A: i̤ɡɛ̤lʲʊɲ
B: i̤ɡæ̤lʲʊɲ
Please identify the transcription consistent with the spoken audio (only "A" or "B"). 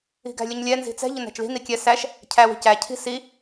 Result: B